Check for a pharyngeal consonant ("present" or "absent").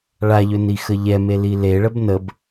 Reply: absent